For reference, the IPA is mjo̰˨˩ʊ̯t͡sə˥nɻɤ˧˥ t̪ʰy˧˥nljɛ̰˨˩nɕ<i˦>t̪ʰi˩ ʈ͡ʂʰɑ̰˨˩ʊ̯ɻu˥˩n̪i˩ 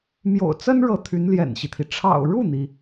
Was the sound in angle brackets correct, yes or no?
yes